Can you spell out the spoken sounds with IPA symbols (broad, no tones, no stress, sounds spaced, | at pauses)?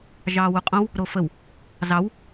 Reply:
ʒ ɑː w u qʼ õ w | ɾ o f ə w | z ɑ w